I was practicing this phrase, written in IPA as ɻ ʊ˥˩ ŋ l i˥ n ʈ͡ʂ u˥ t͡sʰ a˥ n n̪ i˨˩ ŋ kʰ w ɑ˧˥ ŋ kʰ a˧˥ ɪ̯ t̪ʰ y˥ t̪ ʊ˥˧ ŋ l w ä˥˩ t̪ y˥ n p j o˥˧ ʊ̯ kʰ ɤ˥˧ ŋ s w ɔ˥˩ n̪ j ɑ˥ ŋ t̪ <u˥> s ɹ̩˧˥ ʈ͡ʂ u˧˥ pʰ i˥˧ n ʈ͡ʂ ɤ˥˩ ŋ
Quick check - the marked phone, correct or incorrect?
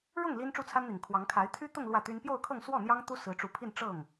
correct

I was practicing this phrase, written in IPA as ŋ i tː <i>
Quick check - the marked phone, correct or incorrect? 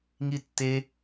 incorrect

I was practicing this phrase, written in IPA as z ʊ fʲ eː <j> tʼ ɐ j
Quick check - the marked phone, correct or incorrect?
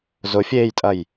correct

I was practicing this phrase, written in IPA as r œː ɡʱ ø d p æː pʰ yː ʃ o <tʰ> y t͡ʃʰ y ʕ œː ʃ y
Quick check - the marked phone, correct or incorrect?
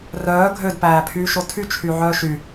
correct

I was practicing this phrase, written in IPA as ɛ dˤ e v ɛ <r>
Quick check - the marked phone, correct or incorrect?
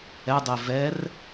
correct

